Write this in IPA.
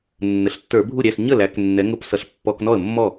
nː ə˩˧ ɬ tː ə˞˧˩˧ bʱ u˥˩ ɾʲ æ˥˩ s ɲ ə˥˩ l æ˩˧ k nː ɛ˩˧ ŋ ʊ˧˩˧ p s ʌ˩˧ ɬ pː ɔ˧˩˧ k n ɔ˥˩ ə̯ mː ɔ˥˩

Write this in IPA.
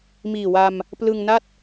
m iː˨˩ w a˧ m | p l ɯ˧ ŋ n a˥˩ t̚

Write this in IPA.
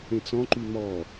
ẽ t͡s ɔ̃ ǃ y m ɔ

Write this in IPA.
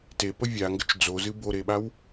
t e p ə vʲ a ŋ ɡ ə t͡ʃ d͡z o z ɨ b o ɾ e ɓ a w

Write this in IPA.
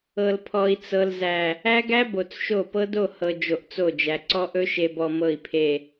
ɤ˨ l pʰ ɔ˨ i̯ t͡s ɤ˨ l z æ˨ | æ˦ ɡ æ˦ b o˨ t͡s ʃ o˦˨ p ɤ˦ d o˦˨ h ɤ˨ d͡ʒ o˨ ʔ t͡s o˦˨ d͡ʒ æ˨ ǀ ɔ˦ ʔ ɵ˦ ʃ e˨ b ɔ˨ m ɤ˦˨ i̯ pʰ e˦˨

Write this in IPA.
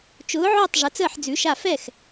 t͡ʃ ʊː˨˥ ʕ ʊː˥˩ tˤ ʐ ə˨˥ t͡s əː˥˩ ħ d͡z ʉ˨˥ ʃ a˥˩ f ɛ˥˩ x

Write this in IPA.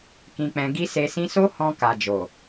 k ĩ˧ k͡p ɛ̃˧ ɡ i˦ s e˧ s ĩ˦ s o˦ h ɔ̃˧ k a˨ d͡ʒ o˨

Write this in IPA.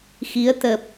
x i˨˦ ə̯ t̪ ə˨˩ p̚

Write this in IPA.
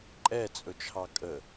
ǃʼ ɛ t͡sʼ ɵ t͡ʃʰ ɑ kʼ ə

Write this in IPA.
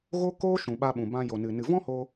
ɣ o˦ k oː˦ ʃ ũ˨ ɓ a˧ ɓ ũ˨ b ã˧ j o˨ n ɨ˨ n ɨ˨ v ɔ̃˦ h o˧

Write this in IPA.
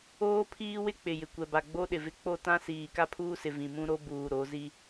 oː˦ pʰ iː˦ w ɪ˦ k͡p ɪ˨ j ɪ˨ kʷ ɛ˨ b a˨ ɡ͡b o˦ ɗ ɪ˨ v ɪ˦ k͡p o˦ t ã˦ s iː˨ k a˦ pʰ uː˦ s ɪ˨ v ĩ˨ m ũ˦ ɾ o˦ b uː˨ ɾ o˨˦ z i˦

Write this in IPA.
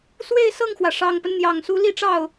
s w e˥˧ ɪ̯ s ɤ˥˩ ŋ x w ä˩ ʂ ɑ˨˩ ŋ p ə˦ n n̪ j ɑ˨˩ ŋ s u˧˥ l i˥˧ ʈ͡ʂ ɑ˥˩ ʊ̯

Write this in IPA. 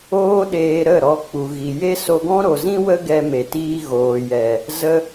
oː˦ ɗ eː˧ ɾ ə˦˨ ɾ ɔ˧ k͡p u˨ ɣ i˨ j e˦ s o˧ ɡ ɔ̃˦ ɾ o˨ z ĩ˦ w ə˦ ɡ ɛ˧ m e˨ t iː˧ ɣ oː˨ j ɛ˨ | z ə˦

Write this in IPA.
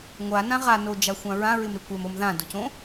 ŋʷ a n ã ʁ a n o d͡ʒ a xʷ ã ɹ ã ɹ ɪ m ɾ e kʷ ɛ m o m ð ã d ʊ c õ

